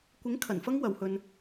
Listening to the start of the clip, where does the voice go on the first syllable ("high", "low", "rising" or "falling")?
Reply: rising